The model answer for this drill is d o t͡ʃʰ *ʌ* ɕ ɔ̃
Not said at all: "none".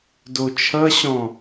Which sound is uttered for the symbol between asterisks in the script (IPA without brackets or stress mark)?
ʌ